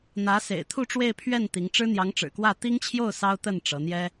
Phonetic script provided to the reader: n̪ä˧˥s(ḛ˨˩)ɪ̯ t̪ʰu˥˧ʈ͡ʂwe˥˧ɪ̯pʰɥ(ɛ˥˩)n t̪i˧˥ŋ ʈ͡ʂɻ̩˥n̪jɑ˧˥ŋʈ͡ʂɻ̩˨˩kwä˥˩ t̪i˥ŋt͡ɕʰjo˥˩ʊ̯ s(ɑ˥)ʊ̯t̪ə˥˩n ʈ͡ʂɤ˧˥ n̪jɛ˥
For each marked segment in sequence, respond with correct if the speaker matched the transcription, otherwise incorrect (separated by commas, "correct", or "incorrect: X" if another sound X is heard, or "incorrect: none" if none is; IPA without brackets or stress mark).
correct, correct, correct